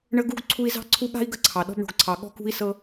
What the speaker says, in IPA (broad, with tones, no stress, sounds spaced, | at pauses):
ɳ ə˦ ɡ u˦ ɡ ǀʰ u˦ i̯ z ɑ̤˥ ǀʰ u˦ ɠ a̤˥ i̯ ɡ ə˦ ǀʰ ɑ˩ ɗ ɔ̤˦ b ɳ o̤˨ ɡ ǀʰ ɑ˨ ɠ ɔ̤˥ k ṳ˥ i̯ s ɤ˦